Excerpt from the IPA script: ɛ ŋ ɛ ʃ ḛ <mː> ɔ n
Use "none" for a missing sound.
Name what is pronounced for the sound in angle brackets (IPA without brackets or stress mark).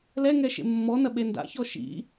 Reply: mː